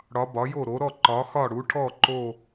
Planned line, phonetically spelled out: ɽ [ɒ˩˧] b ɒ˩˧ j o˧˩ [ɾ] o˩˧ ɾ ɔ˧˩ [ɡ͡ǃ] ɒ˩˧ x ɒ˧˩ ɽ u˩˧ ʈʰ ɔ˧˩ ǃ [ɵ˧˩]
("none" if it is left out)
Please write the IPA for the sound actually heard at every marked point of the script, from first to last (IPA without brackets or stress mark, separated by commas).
ɒ˩˧, ɾ, ǃ, o˧˩